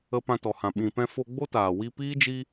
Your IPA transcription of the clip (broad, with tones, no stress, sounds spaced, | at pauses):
ə˧ p ã˧ t ɔ˨ h ã˨ ɓ ĩ˨ p ɛ̃˧ f o˧ ɡ͡b o˦ t aː˨ w i˧ p iː˦ d͡ʒ i˦